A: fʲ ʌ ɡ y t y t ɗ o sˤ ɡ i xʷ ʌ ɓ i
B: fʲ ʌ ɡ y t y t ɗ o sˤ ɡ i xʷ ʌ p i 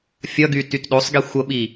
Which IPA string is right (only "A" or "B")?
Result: A